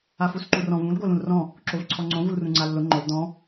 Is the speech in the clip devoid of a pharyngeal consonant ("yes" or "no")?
yes